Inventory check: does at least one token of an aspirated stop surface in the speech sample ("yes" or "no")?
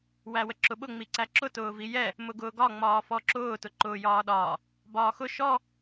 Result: no